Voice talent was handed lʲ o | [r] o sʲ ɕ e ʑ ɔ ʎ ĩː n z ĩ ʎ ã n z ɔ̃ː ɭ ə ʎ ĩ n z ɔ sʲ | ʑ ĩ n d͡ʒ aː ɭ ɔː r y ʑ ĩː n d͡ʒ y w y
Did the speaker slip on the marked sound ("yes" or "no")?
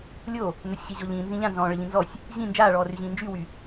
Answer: yes